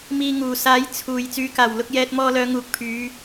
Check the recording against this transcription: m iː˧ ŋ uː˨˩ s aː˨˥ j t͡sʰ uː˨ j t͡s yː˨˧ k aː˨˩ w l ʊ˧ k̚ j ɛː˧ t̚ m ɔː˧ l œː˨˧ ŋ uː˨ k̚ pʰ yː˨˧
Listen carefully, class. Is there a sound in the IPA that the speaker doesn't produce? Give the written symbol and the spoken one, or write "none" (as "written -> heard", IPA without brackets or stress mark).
none